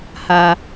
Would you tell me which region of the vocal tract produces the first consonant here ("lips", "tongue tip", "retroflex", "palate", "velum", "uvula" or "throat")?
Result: throat